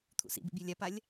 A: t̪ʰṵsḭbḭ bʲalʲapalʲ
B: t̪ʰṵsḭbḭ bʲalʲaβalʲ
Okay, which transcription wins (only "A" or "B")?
A